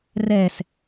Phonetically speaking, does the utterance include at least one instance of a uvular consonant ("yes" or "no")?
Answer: no